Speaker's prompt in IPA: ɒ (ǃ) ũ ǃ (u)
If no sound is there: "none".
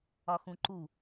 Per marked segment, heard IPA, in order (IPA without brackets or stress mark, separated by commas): x, u